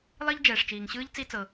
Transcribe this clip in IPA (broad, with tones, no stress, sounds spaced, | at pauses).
lˠ i˥ ʎ d͡ʒ ɛː˩ ʂ t͡ʃ iː˩ ŋ ɕ ɯː˥ ʎ t͡s i˥ t͡s ɤ˩